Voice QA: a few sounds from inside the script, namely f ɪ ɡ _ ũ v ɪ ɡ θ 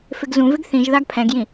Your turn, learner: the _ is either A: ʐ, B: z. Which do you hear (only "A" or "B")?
B